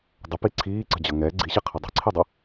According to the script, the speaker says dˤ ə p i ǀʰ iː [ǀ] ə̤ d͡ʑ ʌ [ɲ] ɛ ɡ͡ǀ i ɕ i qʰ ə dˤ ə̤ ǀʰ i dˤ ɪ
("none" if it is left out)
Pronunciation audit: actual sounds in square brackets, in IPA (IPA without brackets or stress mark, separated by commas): ǀ, ŋ